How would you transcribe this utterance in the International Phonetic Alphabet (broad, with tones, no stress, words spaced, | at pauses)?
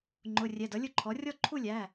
ŋ͡ǃʊ˩˧˩rʲɛ˩˧˩d ʌ˩˥lʲʊ˥˧ǃʰɔ˩˥ rʲɔ˥˧ǃʰu˥˧lʲæ˩˧˩